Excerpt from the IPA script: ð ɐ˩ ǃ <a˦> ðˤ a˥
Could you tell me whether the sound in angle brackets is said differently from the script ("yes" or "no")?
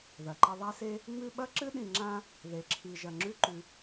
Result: yes